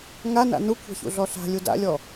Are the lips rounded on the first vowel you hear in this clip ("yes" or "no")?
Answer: no